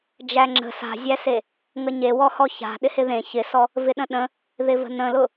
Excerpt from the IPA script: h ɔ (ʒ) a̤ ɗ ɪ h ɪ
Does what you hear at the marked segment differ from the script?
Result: yes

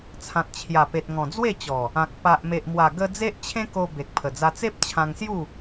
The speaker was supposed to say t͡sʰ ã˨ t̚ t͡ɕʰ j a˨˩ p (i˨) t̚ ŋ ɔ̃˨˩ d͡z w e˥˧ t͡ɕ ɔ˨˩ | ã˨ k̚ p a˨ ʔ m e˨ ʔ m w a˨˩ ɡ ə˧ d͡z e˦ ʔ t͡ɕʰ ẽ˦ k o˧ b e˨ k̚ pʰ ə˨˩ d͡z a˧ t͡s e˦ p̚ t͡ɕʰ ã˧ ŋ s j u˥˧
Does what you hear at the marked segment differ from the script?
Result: yes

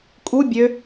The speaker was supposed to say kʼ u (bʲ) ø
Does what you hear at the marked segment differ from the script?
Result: no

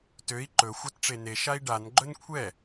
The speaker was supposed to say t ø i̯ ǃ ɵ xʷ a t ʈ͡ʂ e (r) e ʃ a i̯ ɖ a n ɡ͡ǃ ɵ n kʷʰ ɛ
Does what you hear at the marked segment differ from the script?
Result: yes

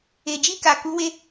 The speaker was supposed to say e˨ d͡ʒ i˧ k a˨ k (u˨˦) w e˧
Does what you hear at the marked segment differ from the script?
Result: no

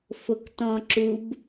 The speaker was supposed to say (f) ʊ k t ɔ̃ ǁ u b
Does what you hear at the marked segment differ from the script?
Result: no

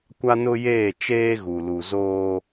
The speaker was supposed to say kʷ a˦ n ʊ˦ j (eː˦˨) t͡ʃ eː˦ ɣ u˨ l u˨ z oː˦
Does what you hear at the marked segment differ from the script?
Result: no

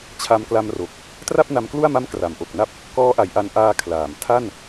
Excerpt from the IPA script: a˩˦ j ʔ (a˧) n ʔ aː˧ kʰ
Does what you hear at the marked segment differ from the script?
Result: no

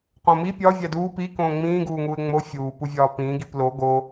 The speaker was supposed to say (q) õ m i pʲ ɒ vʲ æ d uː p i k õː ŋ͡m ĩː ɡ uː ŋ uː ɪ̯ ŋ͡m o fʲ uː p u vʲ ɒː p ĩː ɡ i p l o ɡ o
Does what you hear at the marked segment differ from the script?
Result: no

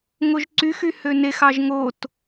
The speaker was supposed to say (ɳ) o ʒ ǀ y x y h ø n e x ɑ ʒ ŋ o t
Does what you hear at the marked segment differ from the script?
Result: yes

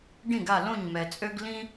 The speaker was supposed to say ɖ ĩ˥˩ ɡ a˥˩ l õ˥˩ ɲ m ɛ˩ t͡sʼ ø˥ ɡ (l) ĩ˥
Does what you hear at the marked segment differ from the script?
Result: no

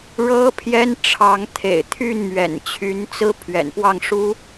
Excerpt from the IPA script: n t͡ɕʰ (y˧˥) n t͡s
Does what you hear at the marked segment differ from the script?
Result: no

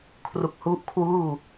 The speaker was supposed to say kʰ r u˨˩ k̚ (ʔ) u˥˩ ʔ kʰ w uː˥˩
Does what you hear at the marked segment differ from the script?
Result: yes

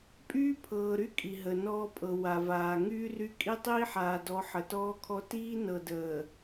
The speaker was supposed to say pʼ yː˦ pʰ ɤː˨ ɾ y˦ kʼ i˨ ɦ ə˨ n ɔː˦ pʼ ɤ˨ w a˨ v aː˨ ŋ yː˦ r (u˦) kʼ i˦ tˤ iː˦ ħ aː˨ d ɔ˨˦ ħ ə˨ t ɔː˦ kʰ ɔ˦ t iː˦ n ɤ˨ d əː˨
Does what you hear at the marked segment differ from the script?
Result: yes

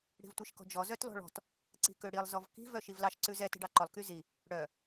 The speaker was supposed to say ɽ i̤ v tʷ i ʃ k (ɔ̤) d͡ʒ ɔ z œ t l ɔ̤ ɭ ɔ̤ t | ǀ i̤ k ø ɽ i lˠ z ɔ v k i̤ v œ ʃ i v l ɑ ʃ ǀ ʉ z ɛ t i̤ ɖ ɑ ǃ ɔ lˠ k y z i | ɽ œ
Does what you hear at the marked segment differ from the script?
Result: no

